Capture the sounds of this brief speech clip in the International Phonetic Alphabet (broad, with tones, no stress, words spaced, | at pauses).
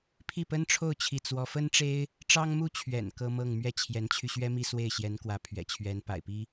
pʰi˥˩pə˥nʈ͡ʂʰo˥˧ʊ̯ t͡ɕʰi˥˩t͡swɔ˥ fə˥nʈ͡ʂe˥ɪ̯ | ʈ͡ʂɑ˥ŋmu˥t͡ɕʰɥɛ̰˨˩n kɤ˥mɤ˥˧ŋ mɥɛ˥˩t͡ɕʰjɛ˧˥nt͡ɕʰy˧ɕɥɛ˥ mi˥˧swe˥˩ɪ̯ɕjɛ˧˥nkwä˧˥ pʰɥɛ̰˨˩t͡ɕʰɥɛ˧˥n pa̰˨˩ɪ̯pi˥